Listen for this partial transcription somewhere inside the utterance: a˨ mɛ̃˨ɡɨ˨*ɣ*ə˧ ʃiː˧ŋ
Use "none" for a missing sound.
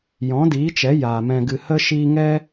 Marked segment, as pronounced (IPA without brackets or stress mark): h